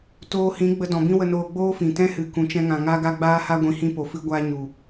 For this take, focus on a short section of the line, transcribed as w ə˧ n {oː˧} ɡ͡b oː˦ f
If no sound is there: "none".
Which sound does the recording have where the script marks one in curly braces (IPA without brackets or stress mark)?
oː˧